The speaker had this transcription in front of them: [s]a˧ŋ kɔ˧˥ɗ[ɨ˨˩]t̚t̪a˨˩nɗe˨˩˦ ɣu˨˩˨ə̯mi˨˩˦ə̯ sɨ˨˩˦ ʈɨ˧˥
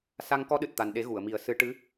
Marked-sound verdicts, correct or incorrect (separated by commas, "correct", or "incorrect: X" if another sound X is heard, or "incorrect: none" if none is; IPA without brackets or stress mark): correct, correct